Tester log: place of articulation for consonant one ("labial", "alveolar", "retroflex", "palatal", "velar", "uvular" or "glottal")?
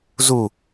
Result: alveolar